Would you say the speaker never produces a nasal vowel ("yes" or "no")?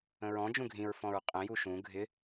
no